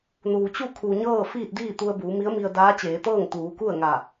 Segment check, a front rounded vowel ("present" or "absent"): absent